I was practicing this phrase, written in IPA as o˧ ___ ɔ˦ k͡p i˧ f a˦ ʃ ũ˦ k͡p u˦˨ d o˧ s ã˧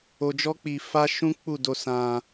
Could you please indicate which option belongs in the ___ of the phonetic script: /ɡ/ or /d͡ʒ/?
d͡ʒ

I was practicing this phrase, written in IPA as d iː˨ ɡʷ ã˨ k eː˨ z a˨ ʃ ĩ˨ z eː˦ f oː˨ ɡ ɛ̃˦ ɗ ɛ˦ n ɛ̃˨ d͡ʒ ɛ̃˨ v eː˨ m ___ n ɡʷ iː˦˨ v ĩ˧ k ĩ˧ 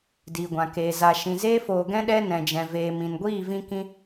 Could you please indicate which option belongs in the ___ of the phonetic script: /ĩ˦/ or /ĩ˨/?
ĩ˨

